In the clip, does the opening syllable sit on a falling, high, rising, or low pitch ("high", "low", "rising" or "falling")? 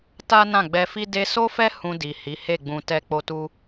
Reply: high